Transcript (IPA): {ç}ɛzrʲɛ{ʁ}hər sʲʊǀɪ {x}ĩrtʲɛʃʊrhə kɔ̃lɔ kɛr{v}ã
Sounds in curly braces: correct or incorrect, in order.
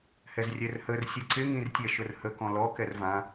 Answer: incorrect: h, incorrect: r, incorrect: ŋ, correct

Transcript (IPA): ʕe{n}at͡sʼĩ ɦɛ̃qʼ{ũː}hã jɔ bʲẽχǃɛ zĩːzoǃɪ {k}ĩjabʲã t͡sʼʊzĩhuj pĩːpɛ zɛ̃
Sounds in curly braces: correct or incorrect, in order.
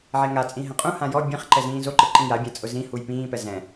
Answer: incorrect: ŋ, incorrect: ũ, incorrect: ǃ

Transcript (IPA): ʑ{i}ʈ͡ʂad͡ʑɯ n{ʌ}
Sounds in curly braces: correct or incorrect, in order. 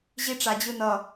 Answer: correct, correct

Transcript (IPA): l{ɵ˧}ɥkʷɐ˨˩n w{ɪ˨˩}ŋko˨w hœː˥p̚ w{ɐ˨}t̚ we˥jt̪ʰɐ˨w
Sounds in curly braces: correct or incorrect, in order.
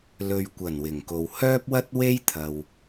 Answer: incorrect: ɵ˨, correct, incorrect: ɐ˥

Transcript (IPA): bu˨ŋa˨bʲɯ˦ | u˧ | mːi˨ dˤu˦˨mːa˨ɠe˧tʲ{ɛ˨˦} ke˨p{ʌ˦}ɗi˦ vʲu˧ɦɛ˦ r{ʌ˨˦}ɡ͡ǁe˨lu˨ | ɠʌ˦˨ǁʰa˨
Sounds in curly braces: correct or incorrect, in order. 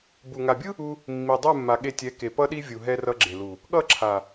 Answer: correct, correct, incorrect: ʌ˧

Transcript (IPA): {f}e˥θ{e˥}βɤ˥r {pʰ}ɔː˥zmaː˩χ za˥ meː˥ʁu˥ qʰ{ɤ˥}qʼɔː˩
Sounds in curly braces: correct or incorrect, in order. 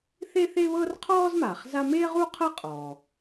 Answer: incorrect: θ, correct, incorrect: qʰ, correct

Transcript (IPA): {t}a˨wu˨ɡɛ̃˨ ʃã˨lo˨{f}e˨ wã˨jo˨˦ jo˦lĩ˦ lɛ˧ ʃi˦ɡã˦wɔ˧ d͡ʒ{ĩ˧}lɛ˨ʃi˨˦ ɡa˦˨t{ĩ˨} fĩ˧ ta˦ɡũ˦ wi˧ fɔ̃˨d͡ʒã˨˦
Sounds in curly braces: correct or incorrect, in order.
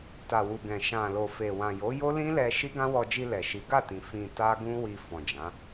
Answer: correct, correct, incorrect: i˧, correct

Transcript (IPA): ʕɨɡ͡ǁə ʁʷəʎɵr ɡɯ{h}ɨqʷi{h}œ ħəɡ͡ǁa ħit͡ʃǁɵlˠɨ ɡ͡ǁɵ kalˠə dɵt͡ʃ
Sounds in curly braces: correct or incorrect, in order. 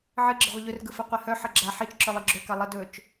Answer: incorrect: f, correct

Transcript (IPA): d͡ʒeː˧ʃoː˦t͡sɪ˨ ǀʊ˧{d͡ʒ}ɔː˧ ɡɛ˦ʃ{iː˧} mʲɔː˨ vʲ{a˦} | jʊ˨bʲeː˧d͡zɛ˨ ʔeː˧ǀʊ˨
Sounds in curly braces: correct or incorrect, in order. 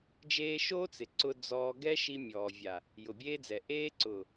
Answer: incorrect: d͡z, incorrect: i˧, incorrect: a˨

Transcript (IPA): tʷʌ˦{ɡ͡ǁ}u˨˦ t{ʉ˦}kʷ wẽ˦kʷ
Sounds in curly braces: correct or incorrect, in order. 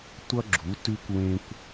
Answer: correct, correct

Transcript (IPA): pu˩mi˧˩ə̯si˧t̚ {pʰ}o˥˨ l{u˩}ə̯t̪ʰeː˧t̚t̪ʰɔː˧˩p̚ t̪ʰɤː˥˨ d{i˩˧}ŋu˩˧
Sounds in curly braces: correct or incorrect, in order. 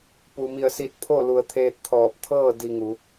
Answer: correct, incorrect: u˩˧, incorrect: i˧

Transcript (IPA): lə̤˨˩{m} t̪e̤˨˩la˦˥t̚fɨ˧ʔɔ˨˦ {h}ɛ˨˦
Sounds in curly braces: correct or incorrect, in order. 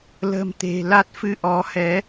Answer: correct, correct

